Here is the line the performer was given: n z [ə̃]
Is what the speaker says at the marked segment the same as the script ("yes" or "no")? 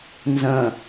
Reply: yes